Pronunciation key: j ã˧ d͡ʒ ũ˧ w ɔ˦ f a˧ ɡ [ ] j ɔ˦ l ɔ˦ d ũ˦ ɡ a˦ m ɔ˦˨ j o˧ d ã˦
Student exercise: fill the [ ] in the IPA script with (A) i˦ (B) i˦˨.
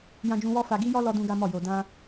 A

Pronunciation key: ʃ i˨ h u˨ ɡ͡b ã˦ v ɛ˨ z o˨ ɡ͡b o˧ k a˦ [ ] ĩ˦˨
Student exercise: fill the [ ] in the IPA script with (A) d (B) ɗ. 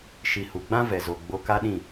B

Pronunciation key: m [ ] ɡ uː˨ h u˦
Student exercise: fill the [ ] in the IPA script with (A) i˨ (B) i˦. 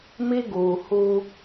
B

